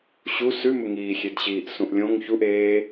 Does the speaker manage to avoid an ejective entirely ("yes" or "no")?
yes